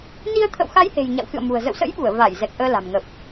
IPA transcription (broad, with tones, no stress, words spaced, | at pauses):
ni˧ə̯ t̪ʰə̰˧˨wxa˨˦jhe̤˨˩j ɲa̰˧˨wxɨ̰˧˨ə̯mṳ˨˩ə̯ zə̰˧˨wsə̰˧˥jɓu˧˩ə̯ va˧˩j zɛ˨˩k̚ʔəː˧ la̤˨˩mŋə˨˩p̚